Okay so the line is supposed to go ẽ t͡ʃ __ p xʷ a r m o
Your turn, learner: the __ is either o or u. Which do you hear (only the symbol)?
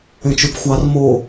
u